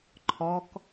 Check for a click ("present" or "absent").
present